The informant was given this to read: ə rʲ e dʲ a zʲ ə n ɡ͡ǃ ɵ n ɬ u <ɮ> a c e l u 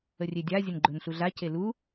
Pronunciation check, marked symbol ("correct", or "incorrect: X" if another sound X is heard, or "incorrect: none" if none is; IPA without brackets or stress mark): correct